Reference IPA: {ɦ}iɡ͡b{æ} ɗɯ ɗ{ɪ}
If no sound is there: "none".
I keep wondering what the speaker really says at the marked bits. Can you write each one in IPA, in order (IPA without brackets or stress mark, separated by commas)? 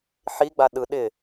ħ, a, ɪ